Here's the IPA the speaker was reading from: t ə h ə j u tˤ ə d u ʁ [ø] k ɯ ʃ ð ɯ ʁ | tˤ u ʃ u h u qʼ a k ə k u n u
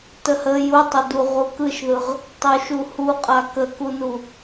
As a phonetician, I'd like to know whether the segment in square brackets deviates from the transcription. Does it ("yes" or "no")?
yes